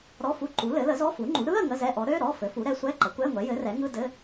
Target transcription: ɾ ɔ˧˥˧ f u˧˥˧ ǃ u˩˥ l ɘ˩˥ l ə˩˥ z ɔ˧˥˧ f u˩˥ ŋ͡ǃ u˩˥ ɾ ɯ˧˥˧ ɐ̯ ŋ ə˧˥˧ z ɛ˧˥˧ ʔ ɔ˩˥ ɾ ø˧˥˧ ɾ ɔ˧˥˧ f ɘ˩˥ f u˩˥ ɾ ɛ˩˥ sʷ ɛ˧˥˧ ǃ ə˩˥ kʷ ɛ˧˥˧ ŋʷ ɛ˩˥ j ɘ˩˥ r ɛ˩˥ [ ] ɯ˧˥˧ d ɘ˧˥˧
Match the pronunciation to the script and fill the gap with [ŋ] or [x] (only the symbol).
ŋ